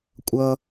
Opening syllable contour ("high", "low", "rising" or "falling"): high